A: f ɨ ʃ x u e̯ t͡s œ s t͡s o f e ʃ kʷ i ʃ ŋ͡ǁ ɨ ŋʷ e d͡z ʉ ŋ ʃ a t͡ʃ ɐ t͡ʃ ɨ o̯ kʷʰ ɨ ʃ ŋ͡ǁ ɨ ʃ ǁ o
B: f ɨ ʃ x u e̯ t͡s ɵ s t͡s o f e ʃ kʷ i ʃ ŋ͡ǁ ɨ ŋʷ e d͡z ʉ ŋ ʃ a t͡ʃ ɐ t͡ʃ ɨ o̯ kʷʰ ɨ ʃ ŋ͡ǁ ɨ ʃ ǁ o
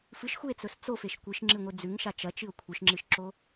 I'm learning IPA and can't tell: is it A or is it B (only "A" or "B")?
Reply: B